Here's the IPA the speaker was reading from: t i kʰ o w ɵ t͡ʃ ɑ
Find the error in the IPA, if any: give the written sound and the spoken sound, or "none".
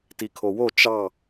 ɵ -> o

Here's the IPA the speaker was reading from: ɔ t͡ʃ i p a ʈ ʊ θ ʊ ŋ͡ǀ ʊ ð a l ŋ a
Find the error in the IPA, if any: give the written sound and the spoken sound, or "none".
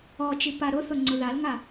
ʈ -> ɾ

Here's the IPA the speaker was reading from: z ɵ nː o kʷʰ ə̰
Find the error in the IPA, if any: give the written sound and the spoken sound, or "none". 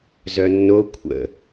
ɵ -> œ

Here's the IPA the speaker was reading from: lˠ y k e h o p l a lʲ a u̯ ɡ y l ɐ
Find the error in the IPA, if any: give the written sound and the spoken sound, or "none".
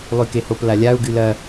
none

